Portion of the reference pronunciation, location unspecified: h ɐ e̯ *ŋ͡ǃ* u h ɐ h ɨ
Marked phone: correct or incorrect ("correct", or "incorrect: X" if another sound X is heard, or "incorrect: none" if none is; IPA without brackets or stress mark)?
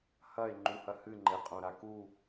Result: correct